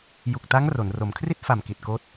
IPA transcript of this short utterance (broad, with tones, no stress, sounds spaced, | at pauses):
j u˨˩ k̚ t a˦˥ ŋ r o˩˦ n r o˩˦ m kʰ r i˥˩ t̚ f a˨˩ m k i˨˩ t̚ k oː˦˥ t̚